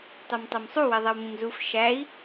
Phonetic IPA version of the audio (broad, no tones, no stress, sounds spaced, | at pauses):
tˤ ɛ m tˤ ɤ m sˤ u w ɛ ðˤ ɛ w m ĩ m z u f ʃ æ i̯